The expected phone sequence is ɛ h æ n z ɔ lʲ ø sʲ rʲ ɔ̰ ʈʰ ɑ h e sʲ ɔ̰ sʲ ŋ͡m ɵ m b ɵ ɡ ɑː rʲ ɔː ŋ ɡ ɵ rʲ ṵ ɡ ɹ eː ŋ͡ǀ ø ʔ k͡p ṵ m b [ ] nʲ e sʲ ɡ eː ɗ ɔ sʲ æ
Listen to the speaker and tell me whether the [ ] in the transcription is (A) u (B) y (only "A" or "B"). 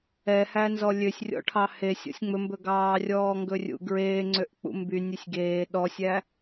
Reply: B